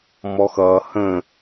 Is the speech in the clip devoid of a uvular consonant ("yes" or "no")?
yes